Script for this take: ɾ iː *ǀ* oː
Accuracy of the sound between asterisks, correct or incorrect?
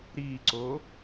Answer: correct